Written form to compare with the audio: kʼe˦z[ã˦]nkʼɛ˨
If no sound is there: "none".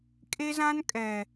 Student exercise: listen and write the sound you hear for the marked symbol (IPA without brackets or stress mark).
ã˦